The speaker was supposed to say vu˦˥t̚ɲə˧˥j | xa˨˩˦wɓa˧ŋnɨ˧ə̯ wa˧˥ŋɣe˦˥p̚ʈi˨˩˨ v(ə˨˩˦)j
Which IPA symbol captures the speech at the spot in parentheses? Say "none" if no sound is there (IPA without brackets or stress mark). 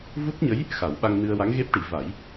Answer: a˨˩˦